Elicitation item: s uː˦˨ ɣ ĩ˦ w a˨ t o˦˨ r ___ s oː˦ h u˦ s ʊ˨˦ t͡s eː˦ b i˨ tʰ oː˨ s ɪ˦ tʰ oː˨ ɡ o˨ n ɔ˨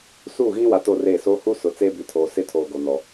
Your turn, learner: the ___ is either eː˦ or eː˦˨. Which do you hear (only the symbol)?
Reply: eː˦˨